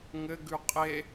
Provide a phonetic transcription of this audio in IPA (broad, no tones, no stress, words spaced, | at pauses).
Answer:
ŋɘ ɡʉqʼe